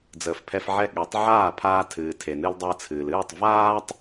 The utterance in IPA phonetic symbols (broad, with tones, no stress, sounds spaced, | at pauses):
d͡z əː˩ f pʰ ɛ˧ f ʕ ɛ˥˩ ɠ ɛ˩˥ tˤ ʕ aː˥˩ pʰ aː˧ tʰ ɨː˩ tʰ e˩ n ɨ˧ l dˤ əː˧ t͡sʰ ɨː˩ l ɨː˥˩ tˤ v aː˥ tˤ